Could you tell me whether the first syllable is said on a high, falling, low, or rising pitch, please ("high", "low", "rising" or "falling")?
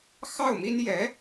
falling